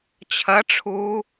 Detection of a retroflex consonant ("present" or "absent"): present